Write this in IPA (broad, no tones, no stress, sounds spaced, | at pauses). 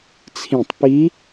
t͡sʰ ĩ tˤ p i